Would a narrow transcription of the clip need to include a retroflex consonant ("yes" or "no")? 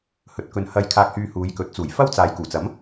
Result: no